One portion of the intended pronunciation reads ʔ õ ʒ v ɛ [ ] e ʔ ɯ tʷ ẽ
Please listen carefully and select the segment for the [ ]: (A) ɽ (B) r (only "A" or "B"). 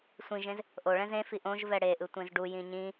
A